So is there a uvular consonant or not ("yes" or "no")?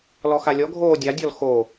no